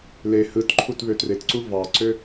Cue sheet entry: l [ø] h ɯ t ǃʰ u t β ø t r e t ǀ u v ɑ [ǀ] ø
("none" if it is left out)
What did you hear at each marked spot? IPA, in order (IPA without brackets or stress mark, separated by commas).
e, ǀ